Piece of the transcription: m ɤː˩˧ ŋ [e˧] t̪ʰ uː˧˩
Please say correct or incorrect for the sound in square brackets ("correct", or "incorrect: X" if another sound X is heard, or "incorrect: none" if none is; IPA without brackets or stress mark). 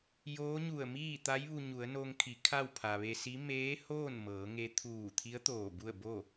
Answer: correct